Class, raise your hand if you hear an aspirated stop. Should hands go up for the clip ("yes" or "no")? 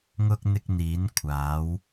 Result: yes